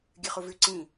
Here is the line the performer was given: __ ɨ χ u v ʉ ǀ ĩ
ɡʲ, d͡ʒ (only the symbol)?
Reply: ɡʲ